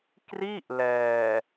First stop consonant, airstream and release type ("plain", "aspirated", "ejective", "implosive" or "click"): plain